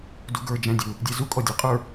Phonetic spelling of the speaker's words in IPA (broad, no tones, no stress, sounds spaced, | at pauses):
d u ɡ ə˞ d͡ʒ æ̃ dʲ u | dʲ ɛ z u kʼ ɔ dʲ ɛ qʼ ə˞